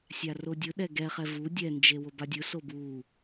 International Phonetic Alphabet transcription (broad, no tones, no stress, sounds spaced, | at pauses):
sʲ a r o dʲ ɯ ɗ ɛ ɡ ɛ χ ɛ v u dʲ ɛ n d͡ʒ e w o b a dʲ ɯ s o b u